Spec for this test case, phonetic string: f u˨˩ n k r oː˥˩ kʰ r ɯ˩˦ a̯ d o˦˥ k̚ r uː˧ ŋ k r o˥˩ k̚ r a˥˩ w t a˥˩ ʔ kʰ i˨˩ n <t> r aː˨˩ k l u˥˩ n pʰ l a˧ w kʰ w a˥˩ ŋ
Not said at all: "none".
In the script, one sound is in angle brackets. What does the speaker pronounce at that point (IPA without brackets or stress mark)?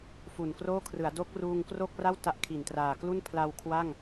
t